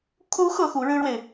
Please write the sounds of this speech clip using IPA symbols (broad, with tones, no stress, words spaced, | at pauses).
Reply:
kʰu˧˥ xɤ˥xu˧˥ɻɻ̩˥ɻwe˨ɪ̯